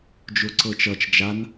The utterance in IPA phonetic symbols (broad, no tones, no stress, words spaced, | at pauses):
d͡ʒʊǀɤt͡ʃʌt͡ʃ d͡ʒan